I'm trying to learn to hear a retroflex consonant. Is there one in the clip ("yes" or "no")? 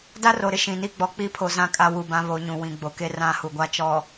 no